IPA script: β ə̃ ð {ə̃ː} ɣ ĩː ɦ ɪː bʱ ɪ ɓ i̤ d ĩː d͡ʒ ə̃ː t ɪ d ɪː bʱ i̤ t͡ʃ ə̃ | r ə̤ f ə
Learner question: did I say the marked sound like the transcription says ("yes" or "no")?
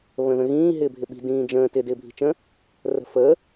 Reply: no